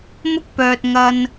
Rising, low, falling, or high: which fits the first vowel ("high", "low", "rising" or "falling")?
high